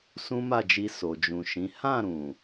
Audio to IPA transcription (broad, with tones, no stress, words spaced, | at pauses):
sũ˦ma˦˨d͡ʒi˧ so˨d͡ʒũ˨ʃĩ˨˦ hã˦˨ɾũ˨